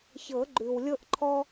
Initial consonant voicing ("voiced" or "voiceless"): voiceless